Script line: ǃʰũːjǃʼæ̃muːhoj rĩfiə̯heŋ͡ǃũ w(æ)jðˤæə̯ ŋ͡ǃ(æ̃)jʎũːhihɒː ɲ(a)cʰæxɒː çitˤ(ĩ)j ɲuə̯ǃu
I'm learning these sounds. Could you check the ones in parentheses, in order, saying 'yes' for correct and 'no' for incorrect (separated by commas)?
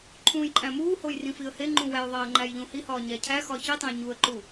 yes, no, no, no